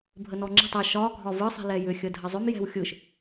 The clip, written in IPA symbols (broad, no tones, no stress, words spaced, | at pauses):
bʱənɔŋ͡ǁi̤tˤ ɛʃ ɒ ɡʱɒvɯ sˤi̤lɛjʏ xʲədʱəzˤʏm jɛ̤wxʲɯʃ